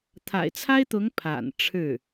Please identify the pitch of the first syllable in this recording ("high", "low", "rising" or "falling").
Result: low